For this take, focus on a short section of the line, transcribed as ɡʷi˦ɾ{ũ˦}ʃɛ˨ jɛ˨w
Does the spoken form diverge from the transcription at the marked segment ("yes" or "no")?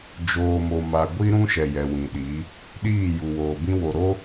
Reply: no